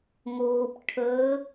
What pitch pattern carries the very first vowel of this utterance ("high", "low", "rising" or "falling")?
low